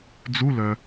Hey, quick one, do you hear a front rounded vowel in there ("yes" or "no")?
yes